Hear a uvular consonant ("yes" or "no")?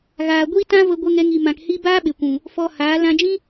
no